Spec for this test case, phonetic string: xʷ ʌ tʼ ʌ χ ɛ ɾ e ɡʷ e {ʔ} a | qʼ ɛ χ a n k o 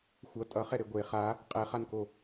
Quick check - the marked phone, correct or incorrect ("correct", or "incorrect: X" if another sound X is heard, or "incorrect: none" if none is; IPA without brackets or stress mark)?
incorrect: χ